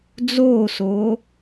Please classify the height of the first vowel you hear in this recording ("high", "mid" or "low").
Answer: mid